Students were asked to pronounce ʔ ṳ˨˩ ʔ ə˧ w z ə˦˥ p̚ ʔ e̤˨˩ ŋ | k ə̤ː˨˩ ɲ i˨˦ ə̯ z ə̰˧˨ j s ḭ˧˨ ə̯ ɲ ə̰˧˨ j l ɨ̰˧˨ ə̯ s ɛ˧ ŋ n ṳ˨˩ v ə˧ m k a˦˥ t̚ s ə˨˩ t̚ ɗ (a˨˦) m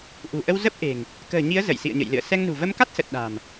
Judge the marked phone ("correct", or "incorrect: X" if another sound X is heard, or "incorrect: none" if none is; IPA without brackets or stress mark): incorrect: a̤˨˩